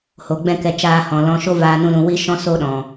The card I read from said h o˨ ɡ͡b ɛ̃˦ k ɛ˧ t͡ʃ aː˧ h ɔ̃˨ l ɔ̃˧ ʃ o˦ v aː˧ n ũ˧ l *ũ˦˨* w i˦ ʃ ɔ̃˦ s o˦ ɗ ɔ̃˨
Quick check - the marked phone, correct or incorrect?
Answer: incorrect